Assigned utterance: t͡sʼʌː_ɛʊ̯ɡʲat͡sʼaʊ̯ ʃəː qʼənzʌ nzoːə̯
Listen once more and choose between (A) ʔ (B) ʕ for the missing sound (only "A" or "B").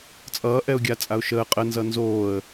A